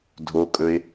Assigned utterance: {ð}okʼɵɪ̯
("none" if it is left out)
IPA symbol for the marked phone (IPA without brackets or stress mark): dʱ